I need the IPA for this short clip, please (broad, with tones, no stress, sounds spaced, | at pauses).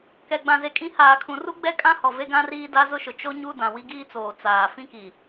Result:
k ɛ˨ ɡ͡b ã˨ z e˨ kʼ ĩ˨˦ h aː˨ kʰ ũ˨ r u˦ ɡ͡b ɛ˦ kʼ ã˦ h ɔ˨ v e˦ ɡ ã˦ r iː˦ d a˦ z ʊ˦ ʃ ʊ˨ t͡ʃ o˦ ɲ u˦ d ã˨ w i˦ ɡ iː˦ t͡s oː˨ t͡s aː˨ f ĩ˦ k i˨